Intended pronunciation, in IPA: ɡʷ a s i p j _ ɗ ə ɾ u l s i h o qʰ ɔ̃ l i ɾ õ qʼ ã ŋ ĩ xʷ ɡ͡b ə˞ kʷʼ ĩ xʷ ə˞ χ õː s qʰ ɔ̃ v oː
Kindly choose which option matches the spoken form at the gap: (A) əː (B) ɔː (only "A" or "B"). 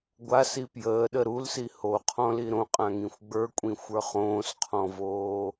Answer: A